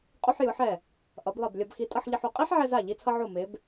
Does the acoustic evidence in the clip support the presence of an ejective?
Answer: yes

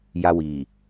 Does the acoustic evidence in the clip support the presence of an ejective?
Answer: no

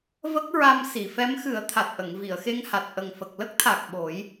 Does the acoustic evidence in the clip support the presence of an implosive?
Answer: yes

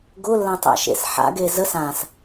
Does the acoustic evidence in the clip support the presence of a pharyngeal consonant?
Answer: yes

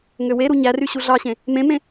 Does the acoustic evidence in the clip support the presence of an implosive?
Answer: no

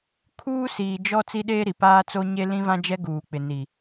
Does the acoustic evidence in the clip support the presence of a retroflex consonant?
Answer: no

